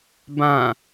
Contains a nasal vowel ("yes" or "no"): yes